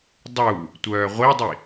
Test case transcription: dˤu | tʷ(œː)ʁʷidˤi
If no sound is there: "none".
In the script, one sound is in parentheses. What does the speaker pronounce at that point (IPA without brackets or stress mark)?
œː